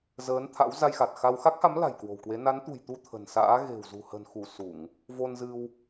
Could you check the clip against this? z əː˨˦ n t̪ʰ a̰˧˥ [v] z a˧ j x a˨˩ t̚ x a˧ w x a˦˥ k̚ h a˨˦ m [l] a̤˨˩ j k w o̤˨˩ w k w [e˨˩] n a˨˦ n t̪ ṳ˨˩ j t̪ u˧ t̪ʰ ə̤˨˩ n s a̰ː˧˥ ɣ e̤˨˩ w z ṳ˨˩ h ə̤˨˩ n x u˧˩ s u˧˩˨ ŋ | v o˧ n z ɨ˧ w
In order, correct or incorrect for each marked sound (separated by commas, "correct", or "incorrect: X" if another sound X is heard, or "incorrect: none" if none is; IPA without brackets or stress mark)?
incorrect: w, correct, incorrect: e˨˦